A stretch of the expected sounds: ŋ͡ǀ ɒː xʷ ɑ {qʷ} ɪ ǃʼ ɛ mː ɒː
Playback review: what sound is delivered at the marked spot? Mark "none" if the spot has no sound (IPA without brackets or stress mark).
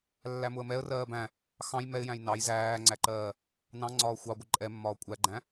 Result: ɡʷ